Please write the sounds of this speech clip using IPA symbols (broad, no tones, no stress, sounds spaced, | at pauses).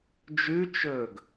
d͡ʒ ʉ t͡ʃ ɵ ɡ